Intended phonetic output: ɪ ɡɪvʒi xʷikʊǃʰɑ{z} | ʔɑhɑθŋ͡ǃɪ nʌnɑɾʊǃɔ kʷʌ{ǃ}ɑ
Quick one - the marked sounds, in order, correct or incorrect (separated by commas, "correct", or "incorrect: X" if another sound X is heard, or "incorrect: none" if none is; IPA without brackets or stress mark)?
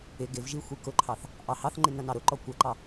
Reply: incorrect: θ, correct